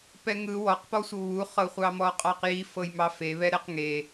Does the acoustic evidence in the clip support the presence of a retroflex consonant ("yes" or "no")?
no